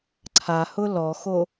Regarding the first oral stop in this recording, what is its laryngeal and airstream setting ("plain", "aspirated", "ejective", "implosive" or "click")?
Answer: click